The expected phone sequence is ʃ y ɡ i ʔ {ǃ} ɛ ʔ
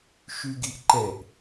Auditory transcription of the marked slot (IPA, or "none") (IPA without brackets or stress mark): ǃ